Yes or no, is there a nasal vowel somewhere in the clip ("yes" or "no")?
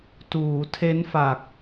no